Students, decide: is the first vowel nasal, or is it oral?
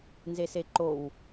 oral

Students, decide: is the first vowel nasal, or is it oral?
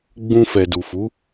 nasal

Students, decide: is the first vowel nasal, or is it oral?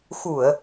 oral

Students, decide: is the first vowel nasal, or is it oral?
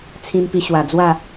nasal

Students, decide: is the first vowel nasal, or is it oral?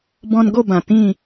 nasal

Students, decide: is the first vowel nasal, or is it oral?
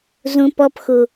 nasal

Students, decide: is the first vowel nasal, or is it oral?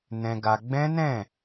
nasal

